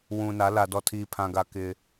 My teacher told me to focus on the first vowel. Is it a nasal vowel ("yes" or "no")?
yes